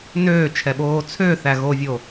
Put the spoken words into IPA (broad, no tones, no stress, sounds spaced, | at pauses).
n øː t͡ʃʰ ɛ ɓ oː t͡sʰ ø θ æ ɣ o vʲ o